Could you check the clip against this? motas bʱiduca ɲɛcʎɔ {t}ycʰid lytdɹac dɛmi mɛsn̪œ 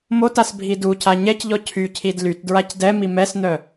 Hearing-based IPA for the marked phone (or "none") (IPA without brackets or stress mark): cʰ